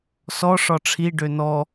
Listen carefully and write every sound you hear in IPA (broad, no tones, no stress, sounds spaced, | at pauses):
s ɔ ʂ ɒ ʈ͡ʂʰ i ɖ ø n ɔ